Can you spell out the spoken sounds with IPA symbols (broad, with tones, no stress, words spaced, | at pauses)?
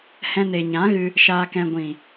hɛ̃˧ne˨ ɲã˨˦ɣɨ˧ | ʃaː˧kɛ̃˧ ɡʷĩ˨